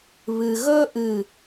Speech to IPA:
β ɨ˧ ɣ ɵ˥ ʔ ɨ˥˧

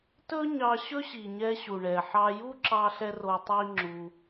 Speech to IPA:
t ɵ˦ ɲ ɑ˧ ɕ ɵ˦ ɕ i˨ ɲ ɛ˧ ɕ u˨ ɳ ɛ˨ ħ ɑ˧ j u˦ ǁ ɑ˧ ɬ ɛ˧ r o˧ tˤ i˦ ŋ͡ǁ u˧

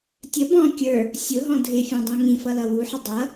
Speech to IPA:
tʲ ə b ɔ̃ kʲ ə˞ | sʲ ʊ ɦ ɔ̃ dʱ ɪ fʲ ɔ̃ dˤ ũ ŋ ĩ f ʌ l ʌ w u ħ ɪ dˤ ʌ

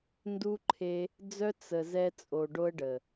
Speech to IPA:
n d u˧ ǃʰ e˧ | d͡z œ˧ t͡s ə˨ z ɛ˧ t͡sʼ o˨ ɖ o˧ ə̯ ɖ ə˨

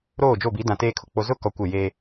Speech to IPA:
ɾ oː˦˨ d͡ʒ o˦˨ b i˨˦ d ã˨ t eː˦ kʰ ʊ˨ k͡p o˦ z ʊ˦ k ɔ˨ kʷ ɪ˦˨ j eː˦

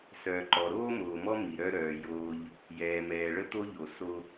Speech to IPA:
s œː˨ ǃ ɔ˨ ɾ oː˦ m oː˨ m ɔ˦ m i˨ ɾ œ˦ ɾ œː˨ j oː˦ ʎ | j ɛː˨ m ɛː˨ ɭ ə˦ t̪ o˦ ʎ o˨ s o˦

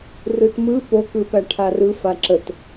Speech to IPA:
r ɯ t m ɯ p o k ɯ p æ ʈʰ a r ɯ f a ǁ ə t

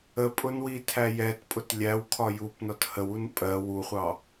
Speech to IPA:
ə pʼ ʊ n w i tʰ æ j ɛ t pʼ ʊ t lʲ æ w kʰ ɒ j u p n ɒ t h ə w u n pʼ ɜ w u χʷ ɑ

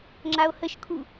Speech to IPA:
ŋ͡ǁ a o̯ h ə ʃ kʰ u

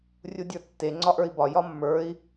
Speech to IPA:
rʲ u dʲ ə˞ tː e ŋ͡ǀ ɒ ʔ ə˞ i̯ b ɒ j ɒ mː ə˞ i̯

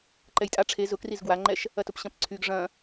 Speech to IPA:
ǃ ɛ j tʼ a ʈ͡ʂʰ e z ʊ k r i z ɡ w a ŋ͡ǃ ɛ ʃ | ɐ t ʊ p ɕ ɐ̃ p ǀʰ y ɡ ʐ ɐ̃

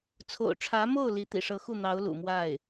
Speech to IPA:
t͡sʰ o̰˨˩ ʊ̯ ʈ͡ʂʰ ä˧˥ m o˥˩ ʊ̯ l i˧˥ t̪ ḭ˨˩ ʂ ɤ˧˥ x u˥˩ n̪ ɑ˧˥ ʊ̯ l ṵ˨˩ m w a˥˩ ɪ̯

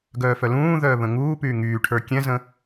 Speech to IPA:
ɡ œː f œ l ũː ð œː β ə̃ ŋ uː p yː ŋ yː ʈʰ ə˞ kʲ ɛ̃ z ə̃

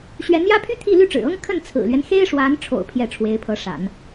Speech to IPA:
ɕ ɥ ɛ˧˥ n j ä˥ pʰ y˥ t̪ʰ i˥˧ l y˥˩ ʈ͡ʂ ɻ̩˨˩ ɤ˥ ŋ kʰ ə˥˩ n t͡sʰ ɹ̩˨˩ l ɥ ɛ˦ n x e˥ ɪ̯ ʂ w a˧˥ n ʈ͡ʂʰ o̰˨˩ ʊ̯ pʰ j ɛ˥˩ ʈ͡ʂʰ w e˧˥ ɪ̯ pʰ ɤ˧˥ ʂ a̰˨˩˦ n

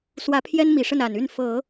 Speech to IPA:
s w ä˧˥ pʰ j ɛ˥ n m i˨˩ ʂ ə˥˩ n a˨˩ n y˥˩ n f ɤ˨˩˦

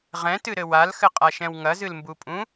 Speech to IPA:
ʁ ɛ̃ t ɨ ɾ ɘ w a l x ɘ qʼ a ʃ ɛ̃ w ŋ ɐ z ɨ l m b u pʼ ũ

